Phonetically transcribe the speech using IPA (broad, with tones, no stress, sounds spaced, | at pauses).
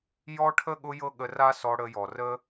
j ɔ˦ ʈʰ ə˦ ɠ ʊ˦ j ɤ˦ ɠ ə˧ r a˦ s ɔ˧ ɽ ə˧ j ɔ˨ r ə˦